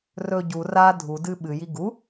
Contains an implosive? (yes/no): yes